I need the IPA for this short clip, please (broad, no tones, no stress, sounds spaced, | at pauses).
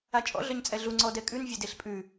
a t͡ʃʼ ɔ̰ ɮ œ ɲ t͡sʼ ɛ ɮ u ŋ͡ǀ ɔ d ɛ kʼ ʉ n vʲ e d e ɬ pʼ ʉ